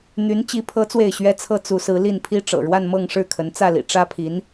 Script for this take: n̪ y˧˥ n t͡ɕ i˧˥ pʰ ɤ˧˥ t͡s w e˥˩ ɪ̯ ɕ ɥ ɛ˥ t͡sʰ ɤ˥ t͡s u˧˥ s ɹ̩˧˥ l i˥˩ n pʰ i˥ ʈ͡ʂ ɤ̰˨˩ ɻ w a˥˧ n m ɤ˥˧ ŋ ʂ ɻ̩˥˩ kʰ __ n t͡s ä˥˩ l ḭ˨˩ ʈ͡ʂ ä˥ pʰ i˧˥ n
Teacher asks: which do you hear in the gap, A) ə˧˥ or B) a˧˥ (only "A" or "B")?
A